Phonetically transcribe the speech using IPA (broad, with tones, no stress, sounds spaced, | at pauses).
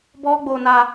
b ɔ˦ ɡ͡b o˧ n a˧